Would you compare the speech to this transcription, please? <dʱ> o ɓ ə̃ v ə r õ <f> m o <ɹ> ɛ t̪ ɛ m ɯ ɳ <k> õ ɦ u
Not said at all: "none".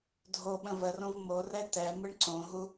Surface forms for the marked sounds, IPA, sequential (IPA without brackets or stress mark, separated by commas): dʱ, v, r, ǀ